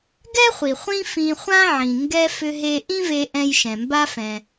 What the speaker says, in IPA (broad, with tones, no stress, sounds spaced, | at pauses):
ɡ ɛ˥ χʷ i˩ χʷ ĩ˥ f ĩ˧ χʷ ã˥ ʕ ĩ˩ ŋ ɡ ɛ˧ f ʏ˧ ɦ e˧ ʔ ĩ˥ v e˧ ʔ ɛ̃˧ j ʃ ɛ̃˩ m b a˧ f ɛ̃˩